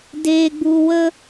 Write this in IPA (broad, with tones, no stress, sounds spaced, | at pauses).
d eː˧ ɡ͡b u˧ w ə˦